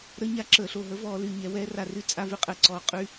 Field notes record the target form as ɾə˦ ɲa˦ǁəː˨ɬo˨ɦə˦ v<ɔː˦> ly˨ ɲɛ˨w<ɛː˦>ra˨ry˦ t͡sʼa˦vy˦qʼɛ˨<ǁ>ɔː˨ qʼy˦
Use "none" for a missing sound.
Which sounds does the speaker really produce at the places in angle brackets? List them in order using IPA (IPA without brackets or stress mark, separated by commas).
ɔː˦, ɛː˦, ǀ